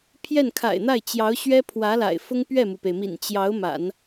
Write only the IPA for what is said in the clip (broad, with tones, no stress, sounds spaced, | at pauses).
pʰ j ɛ˥˩ n kʰ a̰˨˩ ɪ̯ n̪ a˥˩ ɪ̯ t͡ɕ j ɑ˧˥ ʊ̯ ɕ ɥ ɛ˥ pʰ w ä˧˥ l a̰˨˩ ɪ̯ f ʊ˥ ŋ p ɥ ɛ˥˩ m u˩ p e˩ ɪ̯ m ḭ˨˩ n t͡ɕ j ɑ˧˥ ʊ̯ m a̰˨˩˦ n